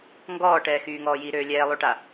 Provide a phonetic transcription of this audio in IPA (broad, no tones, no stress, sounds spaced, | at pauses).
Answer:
ŋ ɡ ɔː ʈ ɛː x yː ŋ ɔː j i ɾ øː lʲ ɛː lˠ o ʈ a